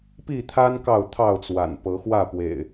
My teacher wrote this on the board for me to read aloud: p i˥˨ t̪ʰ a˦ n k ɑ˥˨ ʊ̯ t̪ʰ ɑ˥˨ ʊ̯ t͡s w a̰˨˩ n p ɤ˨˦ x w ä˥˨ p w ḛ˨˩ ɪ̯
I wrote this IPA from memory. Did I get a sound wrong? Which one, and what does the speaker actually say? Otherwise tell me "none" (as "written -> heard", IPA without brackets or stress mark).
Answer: none